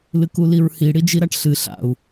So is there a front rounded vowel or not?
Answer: no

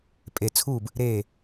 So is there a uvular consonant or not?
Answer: no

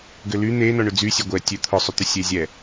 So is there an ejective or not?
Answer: no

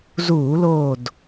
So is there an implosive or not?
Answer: no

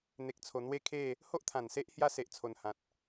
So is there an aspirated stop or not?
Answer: yes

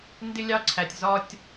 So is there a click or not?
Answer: yes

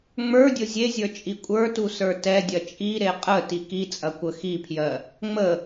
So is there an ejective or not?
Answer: yes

